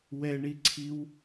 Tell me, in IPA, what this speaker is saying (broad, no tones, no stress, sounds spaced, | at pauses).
w ɛ ɳ i ǀʰ i w